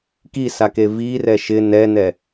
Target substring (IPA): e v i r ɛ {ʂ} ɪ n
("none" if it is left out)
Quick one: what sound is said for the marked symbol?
ʃ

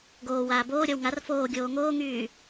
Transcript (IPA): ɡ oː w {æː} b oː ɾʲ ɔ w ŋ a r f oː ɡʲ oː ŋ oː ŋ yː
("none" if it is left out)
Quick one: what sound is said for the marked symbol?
aː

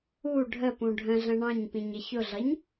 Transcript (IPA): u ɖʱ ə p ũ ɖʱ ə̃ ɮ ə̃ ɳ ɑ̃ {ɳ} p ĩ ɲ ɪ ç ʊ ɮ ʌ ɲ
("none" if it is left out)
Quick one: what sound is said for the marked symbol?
ɲ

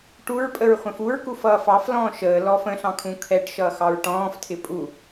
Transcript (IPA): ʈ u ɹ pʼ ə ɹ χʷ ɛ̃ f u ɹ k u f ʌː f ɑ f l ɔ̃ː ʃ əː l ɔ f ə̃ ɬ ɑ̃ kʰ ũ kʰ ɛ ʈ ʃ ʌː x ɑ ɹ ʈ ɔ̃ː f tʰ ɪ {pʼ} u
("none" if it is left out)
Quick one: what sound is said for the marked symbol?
pʼ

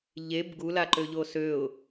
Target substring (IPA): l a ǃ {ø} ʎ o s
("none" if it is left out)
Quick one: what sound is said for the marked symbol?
ø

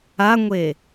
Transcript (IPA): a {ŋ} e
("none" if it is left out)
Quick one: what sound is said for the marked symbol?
ŋʷ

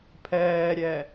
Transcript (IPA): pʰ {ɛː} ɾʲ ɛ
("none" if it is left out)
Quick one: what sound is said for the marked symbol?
ɛː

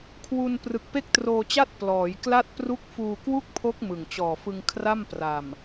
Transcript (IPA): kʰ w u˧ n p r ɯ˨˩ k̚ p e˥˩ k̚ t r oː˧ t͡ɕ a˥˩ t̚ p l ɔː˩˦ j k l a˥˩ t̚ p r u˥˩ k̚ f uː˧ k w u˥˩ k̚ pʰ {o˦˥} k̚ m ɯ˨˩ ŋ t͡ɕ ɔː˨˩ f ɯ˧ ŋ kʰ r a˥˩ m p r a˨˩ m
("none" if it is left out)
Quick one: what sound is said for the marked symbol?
o˦˥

